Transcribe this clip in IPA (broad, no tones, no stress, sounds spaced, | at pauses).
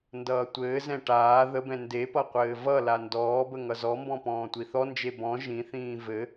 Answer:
n d ʌː tʷ ɘː z ɛ̃ ʈ aː ð ə b ɛ̃ n d e p ʌ qʷ ɘː v ʌ l a n d ɔː b ə ŋ ʌ z ɔ m b ɔ̃ p ɔ̃ː tʷ i θ ɔ n d͡ʒ e b ɔ̃ ʒ ĩ θ ĩː v ɘ